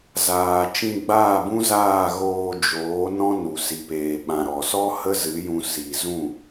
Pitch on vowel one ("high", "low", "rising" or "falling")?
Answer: low